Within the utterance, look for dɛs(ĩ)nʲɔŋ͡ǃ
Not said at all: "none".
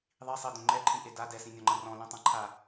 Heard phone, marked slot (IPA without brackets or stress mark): ĩ